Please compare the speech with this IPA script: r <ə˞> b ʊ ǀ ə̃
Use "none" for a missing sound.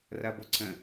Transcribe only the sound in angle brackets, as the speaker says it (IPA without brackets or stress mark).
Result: ɐ